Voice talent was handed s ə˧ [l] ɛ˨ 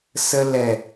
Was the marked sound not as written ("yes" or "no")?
no